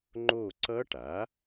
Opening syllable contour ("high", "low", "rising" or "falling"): falling